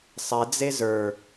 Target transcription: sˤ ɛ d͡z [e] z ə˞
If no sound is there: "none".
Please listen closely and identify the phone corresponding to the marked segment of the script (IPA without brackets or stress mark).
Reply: e